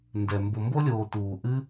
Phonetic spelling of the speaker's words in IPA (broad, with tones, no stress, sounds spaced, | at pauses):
n d ɛ˨ m b o˨ m b o˦ lʲ oː˨ t uː˨ ʔ ɨ˦